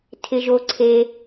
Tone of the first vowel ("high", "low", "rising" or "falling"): high